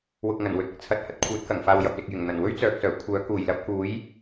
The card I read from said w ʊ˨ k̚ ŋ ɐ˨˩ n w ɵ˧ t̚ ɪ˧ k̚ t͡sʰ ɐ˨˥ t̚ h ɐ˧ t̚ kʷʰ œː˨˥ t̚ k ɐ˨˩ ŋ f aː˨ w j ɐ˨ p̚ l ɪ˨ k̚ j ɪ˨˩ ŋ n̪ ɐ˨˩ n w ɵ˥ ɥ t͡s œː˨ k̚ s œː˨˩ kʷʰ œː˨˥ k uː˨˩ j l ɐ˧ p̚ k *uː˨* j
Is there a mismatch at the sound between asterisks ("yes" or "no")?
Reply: yes